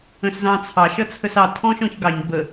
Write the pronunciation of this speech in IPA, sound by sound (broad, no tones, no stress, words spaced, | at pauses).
ə̃szɑ̃t͡sʰɑʃ ʌt͡sʰəsɑ tʰɔ̃ʃɔ̃çɡɑɲ bə